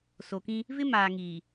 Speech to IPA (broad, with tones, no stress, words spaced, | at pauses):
so˨kĩ˦ | vɪ˦maː˨ŋiː˨